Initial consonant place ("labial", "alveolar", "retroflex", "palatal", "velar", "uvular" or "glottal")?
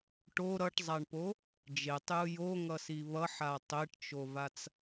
retroflex